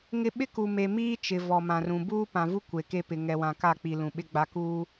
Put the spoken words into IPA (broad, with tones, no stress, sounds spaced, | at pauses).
ŋ ɪ˦ ɓ ɪ˦ k u˨ m e˨ m iː˦ t͡ʃ ɪ˨ v ɔ˨ m ã˨ r ũ˨ b uː˦ p ã˨ v u˦ kʷ e˨ k e˦ p ɪ˨ ŋ ɛ˨ w ã˨ k a˦˨ k͡p i˨ l ũ˨ ɓ ɪ˦ ɡ͡b a˨ k uː˦